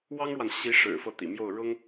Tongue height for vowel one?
low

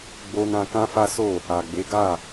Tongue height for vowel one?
mid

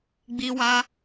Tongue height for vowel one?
high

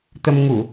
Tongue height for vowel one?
mid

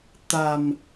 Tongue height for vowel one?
low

